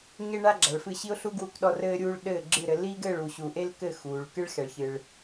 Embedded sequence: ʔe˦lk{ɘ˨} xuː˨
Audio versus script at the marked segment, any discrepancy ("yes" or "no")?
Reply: yes